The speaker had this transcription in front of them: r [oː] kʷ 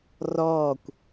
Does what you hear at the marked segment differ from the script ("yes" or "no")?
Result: yes